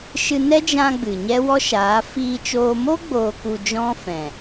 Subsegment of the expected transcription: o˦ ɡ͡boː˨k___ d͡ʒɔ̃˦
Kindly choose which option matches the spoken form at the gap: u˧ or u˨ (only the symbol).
u˨